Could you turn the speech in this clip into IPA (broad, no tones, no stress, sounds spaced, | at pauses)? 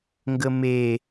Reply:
ŋ ɡ ə m e